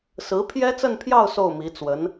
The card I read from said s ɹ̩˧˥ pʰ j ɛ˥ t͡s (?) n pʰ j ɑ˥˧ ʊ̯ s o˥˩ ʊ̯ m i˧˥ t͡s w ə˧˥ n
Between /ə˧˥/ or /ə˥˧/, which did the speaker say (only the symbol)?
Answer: ə˥˧